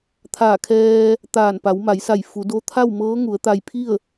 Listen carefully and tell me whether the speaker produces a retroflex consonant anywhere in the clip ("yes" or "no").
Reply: no